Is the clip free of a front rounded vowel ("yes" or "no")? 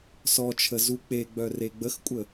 no